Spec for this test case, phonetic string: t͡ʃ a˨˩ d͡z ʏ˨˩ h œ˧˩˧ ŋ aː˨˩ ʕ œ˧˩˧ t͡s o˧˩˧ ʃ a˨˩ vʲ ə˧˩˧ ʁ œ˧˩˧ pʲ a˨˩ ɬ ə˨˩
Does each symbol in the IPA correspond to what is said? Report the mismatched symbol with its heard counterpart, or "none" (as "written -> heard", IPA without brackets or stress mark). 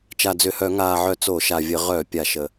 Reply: ɬ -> ʃ